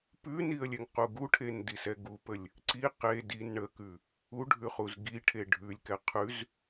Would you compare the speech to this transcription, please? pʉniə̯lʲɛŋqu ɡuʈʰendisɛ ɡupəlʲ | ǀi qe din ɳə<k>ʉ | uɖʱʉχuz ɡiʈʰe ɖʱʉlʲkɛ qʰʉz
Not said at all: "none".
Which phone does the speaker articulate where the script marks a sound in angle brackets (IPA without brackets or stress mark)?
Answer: k